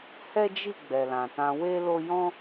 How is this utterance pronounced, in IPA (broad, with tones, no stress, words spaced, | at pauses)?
hɛ˦d͡ʒi˦˨ ɡ͡bɛ˨lã˨tã˧ we˦lo˦ jɔ̃˦